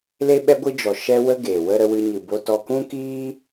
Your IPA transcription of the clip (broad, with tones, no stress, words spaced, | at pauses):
le˦ɓɛ˦ɡʷɨ˦d͡ʒɔ˨ ʃɛ˦wə˦ ɡe˨ wə˦ ɾə˧wɨ˧ɲɨ˨ bo˧tɔ˧ kũ˦kiː˦